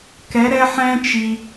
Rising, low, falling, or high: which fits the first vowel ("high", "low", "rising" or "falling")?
rising